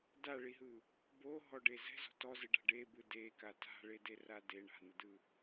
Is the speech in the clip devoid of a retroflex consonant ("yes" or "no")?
no